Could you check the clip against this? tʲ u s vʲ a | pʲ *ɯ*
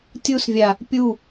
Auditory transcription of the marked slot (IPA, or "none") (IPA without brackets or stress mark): u